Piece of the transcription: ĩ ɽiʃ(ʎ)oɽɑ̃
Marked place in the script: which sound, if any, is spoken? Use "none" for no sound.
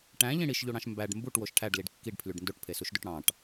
ʎ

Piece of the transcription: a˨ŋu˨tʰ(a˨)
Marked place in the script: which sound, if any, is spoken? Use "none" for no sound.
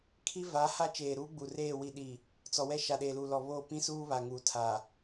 a˨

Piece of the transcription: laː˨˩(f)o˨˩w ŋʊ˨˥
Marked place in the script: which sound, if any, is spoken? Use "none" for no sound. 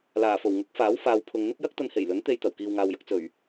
f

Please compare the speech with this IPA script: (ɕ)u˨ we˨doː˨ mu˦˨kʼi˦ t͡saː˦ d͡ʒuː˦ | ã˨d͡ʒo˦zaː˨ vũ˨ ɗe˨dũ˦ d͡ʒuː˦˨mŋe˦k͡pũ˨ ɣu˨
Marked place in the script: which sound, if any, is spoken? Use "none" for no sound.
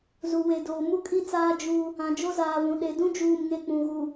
z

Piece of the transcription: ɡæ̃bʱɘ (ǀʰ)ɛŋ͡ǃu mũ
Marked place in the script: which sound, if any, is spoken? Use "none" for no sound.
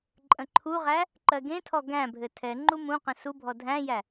tʰ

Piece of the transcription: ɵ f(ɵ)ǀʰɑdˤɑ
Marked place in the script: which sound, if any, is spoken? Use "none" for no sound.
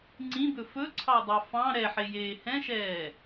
ɵ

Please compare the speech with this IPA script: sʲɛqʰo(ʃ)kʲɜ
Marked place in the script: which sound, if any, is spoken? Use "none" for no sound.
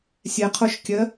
ʃ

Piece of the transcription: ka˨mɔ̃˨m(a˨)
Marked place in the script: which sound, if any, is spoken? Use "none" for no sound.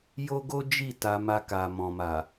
a˨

